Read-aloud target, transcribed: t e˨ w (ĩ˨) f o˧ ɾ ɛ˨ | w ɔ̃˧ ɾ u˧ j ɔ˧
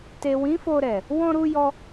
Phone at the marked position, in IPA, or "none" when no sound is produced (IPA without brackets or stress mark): ĩ˨˦